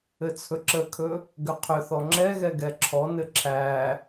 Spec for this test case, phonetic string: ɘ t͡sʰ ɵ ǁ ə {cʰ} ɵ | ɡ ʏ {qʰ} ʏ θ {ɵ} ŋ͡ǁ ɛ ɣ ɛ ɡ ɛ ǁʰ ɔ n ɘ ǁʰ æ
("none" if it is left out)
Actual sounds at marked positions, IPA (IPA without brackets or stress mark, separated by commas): kʰ, qʰ, ɔ